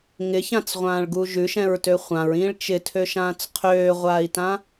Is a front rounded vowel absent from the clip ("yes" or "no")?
no